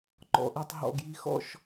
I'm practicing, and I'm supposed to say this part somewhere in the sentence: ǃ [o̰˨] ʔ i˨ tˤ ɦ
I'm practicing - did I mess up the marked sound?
yes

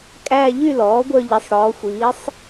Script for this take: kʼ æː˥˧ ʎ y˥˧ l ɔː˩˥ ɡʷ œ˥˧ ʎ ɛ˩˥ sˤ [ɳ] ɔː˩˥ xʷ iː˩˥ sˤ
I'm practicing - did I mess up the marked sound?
yes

